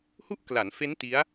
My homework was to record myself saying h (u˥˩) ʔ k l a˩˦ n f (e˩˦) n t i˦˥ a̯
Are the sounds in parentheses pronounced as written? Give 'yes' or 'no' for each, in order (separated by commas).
yes, no